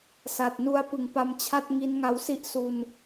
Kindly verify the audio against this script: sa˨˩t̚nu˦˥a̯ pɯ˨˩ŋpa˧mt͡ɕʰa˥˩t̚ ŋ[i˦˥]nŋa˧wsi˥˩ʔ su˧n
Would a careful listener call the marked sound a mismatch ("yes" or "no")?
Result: no